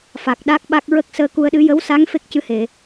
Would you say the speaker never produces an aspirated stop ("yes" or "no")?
yes